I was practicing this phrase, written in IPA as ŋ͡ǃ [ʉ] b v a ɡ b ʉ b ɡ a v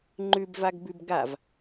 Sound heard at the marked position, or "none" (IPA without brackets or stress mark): ʉ